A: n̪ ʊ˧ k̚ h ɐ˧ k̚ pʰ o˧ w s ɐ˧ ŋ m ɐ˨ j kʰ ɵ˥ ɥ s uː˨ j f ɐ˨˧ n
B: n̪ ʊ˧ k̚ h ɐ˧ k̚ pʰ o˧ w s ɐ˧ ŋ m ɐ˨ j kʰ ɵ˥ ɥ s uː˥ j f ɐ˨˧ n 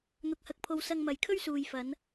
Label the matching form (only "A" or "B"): A